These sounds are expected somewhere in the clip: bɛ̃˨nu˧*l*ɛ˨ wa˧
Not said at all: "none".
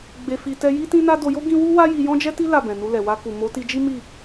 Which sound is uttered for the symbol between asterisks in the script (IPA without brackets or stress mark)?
l